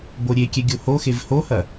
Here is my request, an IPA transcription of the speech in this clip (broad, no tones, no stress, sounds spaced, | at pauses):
b o ɾʲ e kʲ ɛ ɡʲ o h o x e v h o h ɐ